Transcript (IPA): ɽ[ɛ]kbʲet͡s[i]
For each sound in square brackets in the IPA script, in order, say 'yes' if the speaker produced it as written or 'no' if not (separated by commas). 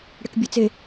yes, no